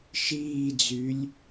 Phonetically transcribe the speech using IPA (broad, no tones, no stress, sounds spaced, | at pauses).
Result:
ʃ iː d͡z y lʲ